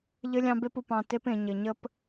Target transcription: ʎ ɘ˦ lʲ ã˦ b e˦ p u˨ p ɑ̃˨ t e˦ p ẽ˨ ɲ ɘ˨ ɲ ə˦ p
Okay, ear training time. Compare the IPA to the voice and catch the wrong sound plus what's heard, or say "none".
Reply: ã˦ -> ɑ̃˦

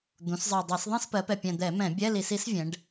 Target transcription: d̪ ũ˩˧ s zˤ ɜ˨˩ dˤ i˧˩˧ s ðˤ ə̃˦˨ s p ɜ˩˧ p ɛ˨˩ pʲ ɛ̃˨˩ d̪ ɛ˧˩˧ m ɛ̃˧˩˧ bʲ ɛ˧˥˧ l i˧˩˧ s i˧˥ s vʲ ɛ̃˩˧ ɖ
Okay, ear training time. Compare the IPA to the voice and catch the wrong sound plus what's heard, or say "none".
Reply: none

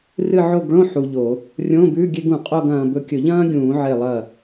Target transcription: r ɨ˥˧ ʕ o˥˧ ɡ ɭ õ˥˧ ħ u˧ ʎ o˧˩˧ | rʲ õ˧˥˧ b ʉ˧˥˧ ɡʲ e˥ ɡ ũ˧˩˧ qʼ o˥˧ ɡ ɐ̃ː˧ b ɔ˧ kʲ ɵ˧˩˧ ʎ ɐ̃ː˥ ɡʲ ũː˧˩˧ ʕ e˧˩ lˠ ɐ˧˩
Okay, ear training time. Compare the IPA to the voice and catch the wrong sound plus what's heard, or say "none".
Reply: ɔ˧ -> ɵ˧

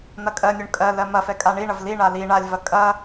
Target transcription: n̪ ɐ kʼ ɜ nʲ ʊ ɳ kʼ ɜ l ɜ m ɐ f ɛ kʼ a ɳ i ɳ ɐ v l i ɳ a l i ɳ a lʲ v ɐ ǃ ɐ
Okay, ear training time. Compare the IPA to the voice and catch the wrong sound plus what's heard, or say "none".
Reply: ǃ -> kʼ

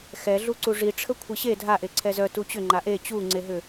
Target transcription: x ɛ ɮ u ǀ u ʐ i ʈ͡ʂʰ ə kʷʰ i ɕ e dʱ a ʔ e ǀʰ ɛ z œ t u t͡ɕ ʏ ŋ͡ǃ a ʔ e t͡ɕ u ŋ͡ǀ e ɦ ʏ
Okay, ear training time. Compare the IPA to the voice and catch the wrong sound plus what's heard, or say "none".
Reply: none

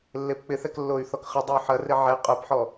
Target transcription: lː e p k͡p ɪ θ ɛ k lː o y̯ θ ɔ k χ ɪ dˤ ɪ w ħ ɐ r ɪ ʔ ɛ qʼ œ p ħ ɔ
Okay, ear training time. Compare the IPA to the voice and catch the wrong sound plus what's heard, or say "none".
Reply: ʔ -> ʕ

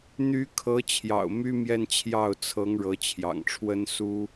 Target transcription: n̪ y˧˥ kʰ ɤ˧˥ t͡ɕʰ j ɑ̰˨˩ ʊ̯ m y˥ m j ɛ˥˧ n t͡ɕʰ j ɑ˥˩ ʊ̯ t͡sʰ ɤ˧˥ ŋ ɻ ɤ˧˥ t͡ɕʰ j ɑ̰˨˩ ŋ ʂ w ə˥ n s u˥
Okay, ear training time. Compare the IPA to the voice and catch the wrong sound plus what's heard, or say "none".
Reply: ʂ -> ʈ͡ʂʰ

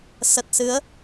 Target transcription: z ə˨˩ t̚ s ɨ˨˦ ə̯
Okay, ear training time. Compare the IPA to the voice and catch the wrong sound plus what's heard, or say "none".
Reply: z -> s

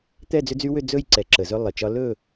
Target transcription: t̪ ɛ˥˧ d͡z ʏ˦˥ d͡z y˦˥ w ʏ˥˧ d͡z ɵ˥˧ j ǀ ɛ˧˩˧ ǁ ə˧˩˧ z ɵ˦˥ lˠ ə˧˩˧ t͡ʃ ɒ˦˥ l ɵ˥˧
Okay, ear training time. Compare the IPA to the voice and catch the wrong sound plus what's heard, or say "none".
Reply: none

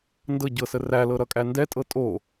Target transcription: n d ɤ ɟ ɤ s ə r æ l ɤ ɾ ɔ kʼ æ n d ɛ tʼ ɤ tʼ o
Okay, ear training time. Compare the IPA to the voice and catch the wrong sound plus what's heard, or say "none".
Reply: ɔ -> ʌ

